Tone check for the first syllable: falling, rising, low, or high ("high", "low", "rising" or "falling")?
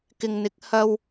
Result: low